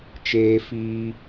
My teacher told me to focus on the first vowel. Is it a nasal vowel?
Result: no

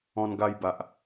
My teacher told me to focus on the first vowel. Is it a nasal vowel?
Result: yes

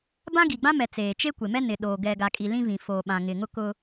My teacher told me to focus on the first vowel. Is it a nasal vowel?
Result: yes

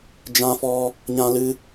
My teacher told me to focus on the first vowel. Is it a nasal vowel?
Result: yes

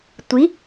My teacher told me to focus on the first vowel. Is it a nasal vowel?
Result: no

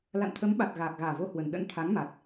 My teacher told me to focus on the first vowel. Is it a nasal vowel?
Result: no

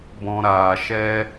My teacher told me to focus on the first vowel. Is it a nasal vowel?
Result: yes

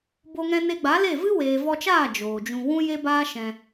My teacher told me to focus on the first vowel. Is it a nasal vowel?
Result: no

